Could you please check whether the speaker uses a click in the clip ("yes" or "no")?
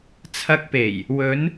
no